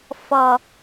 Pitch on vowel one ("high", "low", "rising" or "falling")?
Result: low